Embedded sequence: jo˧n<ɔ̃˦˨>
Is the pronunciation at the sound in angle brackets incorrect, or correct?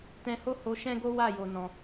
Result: incorrect